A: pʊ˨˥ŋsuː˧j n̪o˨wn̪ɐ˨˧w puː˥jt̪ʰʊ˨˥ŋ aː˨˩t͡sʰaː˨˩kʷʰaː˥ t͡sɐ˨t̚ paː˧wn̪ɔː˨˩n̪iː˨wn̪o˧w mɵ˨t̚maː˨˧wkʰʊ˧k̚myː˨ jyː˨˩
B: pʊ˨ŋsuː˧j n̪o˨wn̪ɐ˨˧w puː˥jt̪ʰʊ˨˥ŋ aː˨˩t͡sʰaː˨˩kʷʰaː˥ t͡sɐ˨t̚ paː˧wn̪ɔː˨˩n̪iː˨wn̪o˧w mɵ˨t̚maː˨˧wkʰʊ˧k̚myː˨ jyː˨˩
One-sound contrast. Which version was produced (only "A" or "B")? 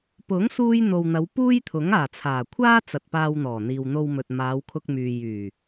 A